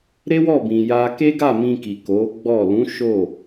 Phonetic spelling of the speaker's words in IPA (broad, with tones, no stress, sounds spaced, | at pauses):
ɾ e˦ w ɔ˦˨ b ĩ˧ j a˦ k e˦ ɡ a˦˨ m ĩ˧ k i˨ k o˨˦ ɡ͡b ɔ˦˨ l ũ˨˦ ʃ o˦˨